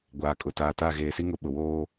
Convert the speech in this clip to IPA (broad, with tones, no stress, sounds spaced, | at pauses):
ɡʷ aː˨ kʼ ʊ˨ t aː˨ t a˦˨ ɣ eː˨ s i˦ ŋ ʊ˨ ɓ ʊ˨ w oː˦